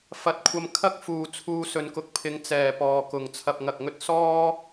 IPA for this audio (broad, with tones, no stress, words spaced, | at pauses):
fɐ˨˥t̚kʷʰɐ˧m kʰɐ˥k̚ fuː˨ t͡sʰuː˧sɵ˨nkʊ˧k̚pʰɪ˨˧ŋ t͡sɛː˨pɔː˨kʊ˨ŋ t͡sʰɐ˨p̚ŋɐ˨k̚ŋɵ˧t̚ sɔː˥